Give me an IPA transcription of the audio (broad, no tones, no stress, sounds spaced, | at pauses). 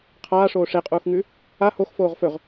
qʰ aː ʂ oː ʂ e qʼ uː x ŋ ʉ | a h o x f oː ʁ f ɵ ʁ